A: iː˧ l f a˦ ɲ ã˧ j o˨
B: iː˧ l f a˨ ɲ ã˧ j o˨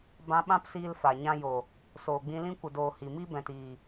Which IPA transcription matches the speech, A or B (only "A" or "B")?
B